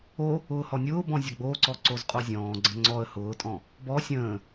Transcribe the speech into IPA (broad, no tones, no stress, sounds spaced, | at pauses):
o | ʊː h ɔ nʲ ʊː b ɔ̃ zʲ ʌ ɡ͡b oː ǀ ɔ ǀ o z qʼ o zʲ ɔ̃ː ɡ͡ǀ ə̃ ŋ͡ǀ ɔ ə̯ h ʊː tʼ ɔ̃ | b ɔ sʲ ə̃ː